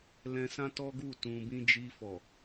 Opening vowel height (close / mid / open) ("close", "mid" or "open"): mid